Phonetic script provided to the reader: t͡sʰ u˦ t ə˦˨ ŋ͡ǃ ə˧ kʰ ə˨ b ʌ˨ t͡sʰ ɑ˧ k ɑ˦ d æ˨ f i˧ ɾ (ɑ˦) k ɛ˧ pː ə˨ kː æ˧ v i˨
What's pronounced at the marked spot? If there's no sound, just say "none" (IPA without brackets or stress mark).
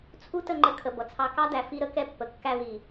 ə˦